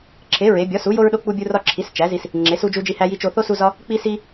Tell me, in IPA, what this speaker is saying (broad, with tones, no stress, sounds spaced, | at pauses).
ǁʰ e˨˥ ɹ e˨˥ bʲ ɒ˨˥ s u˨˥ j o˦ ɹ ɗ o˦ k͡p u˦ bʲ u˦ r ɒ˦ ǁʰ i˨˥ s t͡ʃ æ˨˥ z i˦ s | ŋ͡ǁ e˨˥ s u˦ d͡ʒ u˦ d͡ʒ i˦ h æ˦ j i˦ t͡ʃ o˦ θ o˦ s u˦ z ɒ˦ | k͡p i˦ s i˦